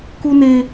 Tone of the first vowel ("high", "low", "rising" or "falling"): high